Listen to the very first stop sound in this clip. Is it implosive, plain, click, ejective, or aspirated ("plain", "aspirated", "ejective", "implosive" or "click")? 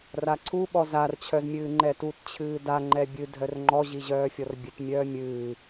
click